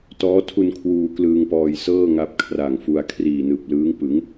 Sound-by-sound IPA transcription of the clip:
t ɔː˦˥ tʰ u˧ n kʰ w uː˧ k l ɯː˧ ŋ p ɔː˧ j s ɤː˥˩ ŋ a˦˥ p̚ kʰ r a˨˩ ŋ f u˧ a̯ kʰ r iː˨˩ n ɯː˨˩ p̚ l ɯː˦˥ ŋ p ɯ˩˦ ŋ

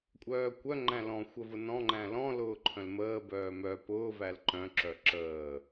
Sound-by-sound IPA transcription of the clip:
kʷʼ œː kʷ œ ŋ͡ǃ æ̃ l ɔ̃ xʷ ə v ʊ n ɔ̃ ŋ͡ǃ æ̃ l ɔ̃ l ʊː ǃʰ œ̃ l m əː b œː m œ p ʊː v æ l ǃ œ̃ ǁ œ ǁ əː

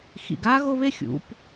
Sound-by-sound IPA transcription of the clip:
x ḭ˩ ɡ a˦˥ ɣ o˥˧ β e˥˧ xʲ ṵ˩˧ p

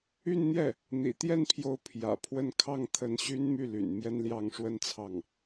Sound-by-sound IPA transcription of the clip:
y˥˧ n n̪ j ɛ˥˩ | n̪ ḭ˨˩ t̪ j ɛ˥˩ n pʰ j o˧˥ ʊ̯ pʰ j ä̰˨˩ pʰ w ə˥˧ n kʰ ɑ˥˩ ŋ t̪ʰ ə˧˥ n ɕ y˥ n m y˥˩ l y̰˨˩ n m j ɛ˥ n l j ɑ˥˩ ŋ ʂ w ə˥ n t͡sʰ ɑ˥˩ ŋ

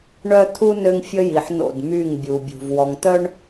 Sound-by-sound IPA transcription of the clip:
ɳ œ˦ t̪ʰ u˦ n ø˦ ŋ fʲ ə˦ j i˨ ħ n o̰˦˨ d m y˦˨ ŋ bʲ u˨ bʲ ṳ˨ v w ɔ˨ ŋ t̪ œ˦ ɳ

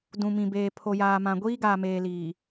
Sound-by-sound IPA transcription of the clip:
d ũ˨ m ĩ˨ b eː˨ pʰ o˨ j aː˨ m ã˨ ɡʷ iː˦ ɡ aː˨ m eː˨ l iː˨

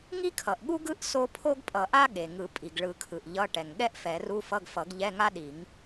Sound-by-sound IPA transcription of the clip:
ŋ i˥ kʰ ʌ˩ ʔ ɠ u˥ ɡ ɯ˥ ʔ s o˥ pʰ o˥ ɡ pʼ ʌ˨˩˦ ʔ a˥ ɠ e˩ ŋ ɯ˨˩˦ pʼ i˩ ɡ ɭ ɯ˨˩˦ kʰ ɯ˩ ʔ ʎ ʌ˧˥˧ ʈ ɛ˩ ŋ ɠ ɛ˥ ʔ f ɛ˨˩˦ r u˧˥˧ f ʌ˧˥˧ ɡ f ʌ˨˩˦ ɡ ʎ ɛ˧˥˧ ŋ a˥ ɗ i˨˩˦ ŋ

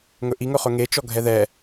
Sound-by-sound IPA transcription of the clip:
ŋ ɵ ʔ i ŋ ɵ χ ɵ ŋ e t͡ʃ ɔ ɡʱ ɛ ð ɛ

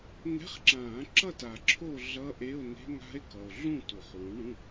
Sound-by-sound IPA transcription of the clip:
n̪ ɛ̤˧˥˧ χ ǁ ãː˨˩˦ ǁ ʌ˥˧ t a˨ ǁʰ o˥˧ ɮ ʌ˦˥ ʔ e˧˥˧ o̯ n e̤˦˥ ŋ a̤˦˥ e̯ k ʌ˨ o̯ ɮ ũ˥˧ t u˨˩˦ χ w ũ˨˥ ɳ ũ˧˥˧

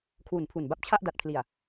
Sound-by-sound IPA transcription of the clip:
kʰ w u˨˩ n pʰ u˨˩ n b a˥˩ p̚ t͡ɕʰ a˥˩ ʔ d a˨˩ t̚ pʰ l i˨˩ a̯

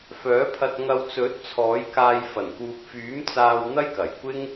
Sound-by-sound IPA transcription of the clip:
f œː˨˥ pʰ ɐ˧ t̚ ŋ ɐ˧ w t͡s ɵ˨˥ t̚ t͡sʰ ɔː˨˥ j k aː˧ j f ɐ˨˩ n k uː˨ p̚ f yː˨˥ m t͡s aː˧ w n̪ ɐ˥ j k ɐ˨˩ j kʷ ɪ˥ ŋ

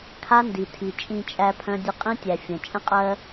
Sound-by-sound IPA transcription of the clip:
kʰ a˦ n d i˨ tʰ i˨ t͡ʃʼ ĩ˧ t͡ʃʼ æ˧ pʰ œ̃˧ dʲ ə˧ qʼ ĩ˦ tʲ æ˨ fʲ ə̃˨ t͡ʃʼ ə̃˦ qʼ ɜ˦

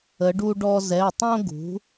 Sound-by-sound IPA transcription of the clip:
ə˩˧ ɖ u˧ ɖ ɔ˧ z ɛ˩˧˩ tˤ õ˧ ɡ ṳ˩˧

